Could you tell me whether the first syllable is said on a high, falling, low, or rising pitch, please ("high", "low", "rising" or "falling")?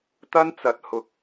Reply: high